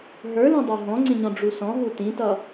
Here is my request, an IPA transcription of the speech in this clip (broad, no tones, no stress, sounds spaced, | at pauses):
ɦ ə˞ l ũ dˤ ə˞ ɦ ɔ̃ ŋ͡ǀ ĩ ɲ ɔ̃ ɖ͡ʐ u s ɔ̃ ɦ u t ĩ t ʌ